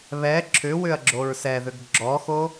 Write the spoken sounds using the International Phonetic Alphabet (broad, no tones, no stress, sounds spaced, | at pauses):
β ɛ ǁʰ ʏ w ʏ ɐ̯ ɡ͡ǁ o ɹ s ɛ ð ʏ ɡ ɡ͡ǁ ɔ x o